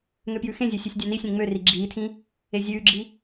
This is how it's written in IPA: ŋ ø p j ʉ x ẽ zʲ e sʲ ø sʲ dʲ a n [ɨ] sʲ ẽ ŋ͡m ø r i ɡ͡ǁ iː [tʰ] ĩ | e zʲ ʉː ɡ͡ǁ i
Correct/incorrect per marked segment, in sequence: incorrect, correct

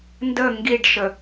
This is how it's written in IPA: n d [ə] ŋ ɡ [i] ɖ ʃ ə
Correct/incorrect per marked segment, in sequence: correct, correct

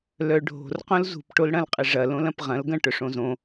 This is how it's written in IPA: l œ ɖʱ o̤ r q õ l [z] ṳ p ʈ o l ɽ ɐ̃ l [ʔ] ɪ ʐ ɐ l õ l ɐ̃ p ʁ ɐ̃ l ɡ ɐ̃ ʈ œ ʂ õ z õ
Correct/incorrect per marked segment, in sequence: correct, incorrect

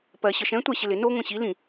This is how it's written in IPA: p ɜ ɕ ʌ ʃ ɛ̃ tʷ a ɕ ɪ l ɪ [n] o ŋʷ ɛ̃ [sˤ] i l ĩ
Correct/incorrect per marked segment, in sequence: correct, incorrect

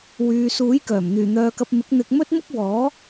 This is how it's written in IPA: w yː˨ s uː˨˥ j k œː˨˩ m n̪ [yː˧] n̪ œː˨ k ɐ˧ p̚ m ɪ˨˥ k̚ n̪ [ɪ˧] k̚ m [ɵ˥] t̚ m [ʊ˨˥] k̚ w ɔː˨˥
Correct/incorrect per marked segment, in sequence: incorrect, correct, correct, incorrect

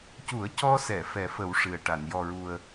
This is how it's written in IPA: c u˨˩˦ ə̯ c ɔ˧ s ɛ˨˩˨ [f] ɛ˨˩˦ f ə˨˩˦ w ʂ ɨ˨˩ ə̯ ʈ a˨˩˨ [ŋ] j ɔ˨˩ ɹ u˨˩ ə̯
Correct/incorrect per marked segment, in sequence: correct, incorrect

